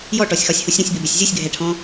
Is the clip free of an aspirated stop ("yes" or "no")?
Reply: no